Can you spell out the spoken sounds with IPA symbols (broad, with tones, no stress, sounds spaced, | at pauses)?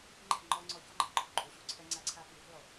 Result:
ŋ͡ǃ ɛ̤˦˨ ŋ͡ǃ ɔ˧ ŋ͡ǀ ɔ˧ ç ɔ˦ ŋ͡ǃ ɛ̤˨˦ ǃʼ ṳ˨ ǃʼ u˨ ɕ u˧ ǀʰ ɛ˧ ŋ͡ǀ a˧ ǀʰ a˧ k i˨ w ɛ̤˦ lˠ o˨